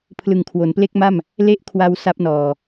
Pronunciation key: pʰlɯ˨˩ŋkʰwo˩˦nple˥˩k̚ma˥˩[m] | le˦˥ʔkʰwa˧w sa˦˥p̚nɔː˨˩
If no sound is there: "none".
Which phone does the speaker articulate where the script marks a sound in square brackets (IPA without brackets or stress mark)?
m